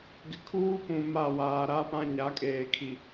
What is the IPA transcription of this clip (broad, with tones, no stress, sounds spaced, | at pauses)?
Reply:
ɡ ɪ˨ kʰ uː˦ p ũ˨ m a˦˨ w aː˨ ɾ a˦ p ã˦ ɲ a˨˦ kʼ eː˨ kʰ i˨